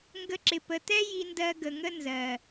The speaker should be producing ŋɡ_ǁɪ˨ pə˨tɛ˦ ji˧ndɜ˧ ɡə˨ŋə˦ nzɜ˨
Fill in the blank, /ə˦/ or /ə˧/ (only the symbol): ə˧